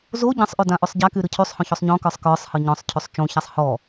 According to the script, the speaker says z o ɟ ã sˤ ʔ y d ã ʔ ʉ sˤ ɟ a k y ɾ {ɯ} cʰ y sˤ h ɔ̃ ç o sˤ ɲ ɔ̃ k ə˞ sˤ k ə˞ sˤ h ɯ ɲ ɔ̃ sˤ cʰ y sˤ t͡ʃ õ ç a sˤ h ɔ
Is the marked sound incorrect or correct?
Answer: correct